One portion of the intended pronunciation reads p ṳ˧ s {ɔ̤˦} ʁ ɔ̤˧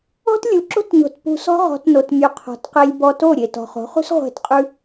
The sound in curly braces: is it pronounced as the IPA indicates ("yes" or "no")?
yes